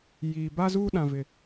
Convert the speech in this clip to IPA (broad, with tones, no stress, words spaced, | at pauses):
jiː˨ ba˦zuː˦ɗã˨vɪ˨